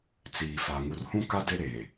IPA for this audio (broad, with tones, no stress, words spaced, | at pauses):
t͡siː˨fa˨ ŋu˨rhũ˦ ka˦de˦ɾeː˨